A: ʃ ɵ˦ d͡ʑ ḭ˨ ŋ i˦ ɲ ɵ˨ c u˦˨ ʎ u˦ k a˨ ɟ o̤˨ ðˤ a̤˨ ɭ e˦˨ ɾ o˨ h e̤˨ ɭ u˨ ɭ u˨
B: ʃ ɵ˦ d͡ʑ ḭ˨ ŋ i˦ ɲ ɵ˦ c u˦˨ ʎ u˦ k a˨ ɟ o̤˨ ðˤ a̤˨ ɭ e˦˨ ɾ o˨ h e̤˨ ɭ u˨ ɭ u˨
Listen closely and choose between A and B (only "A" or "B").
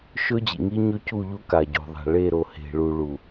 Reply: B